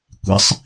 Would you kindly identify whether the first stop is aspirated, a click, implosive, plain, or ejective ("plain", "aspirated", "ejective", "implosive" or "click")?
plain